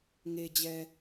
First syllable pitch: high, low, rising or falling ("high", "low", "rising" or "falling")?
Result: low